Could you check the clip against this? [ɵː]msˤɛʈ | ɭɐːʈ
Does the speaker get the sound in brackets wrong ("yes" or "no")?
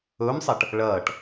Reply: no